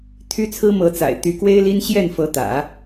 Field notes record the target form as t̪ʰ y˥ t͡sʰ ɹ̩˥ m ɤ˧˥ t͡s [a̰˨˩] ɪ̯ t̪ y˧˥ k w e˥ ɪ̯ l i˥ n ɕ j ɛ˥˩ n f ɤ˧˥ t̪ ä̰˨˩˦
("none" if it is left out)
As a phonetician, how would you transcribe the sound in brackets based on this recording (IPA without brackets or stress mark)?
a̰˨˩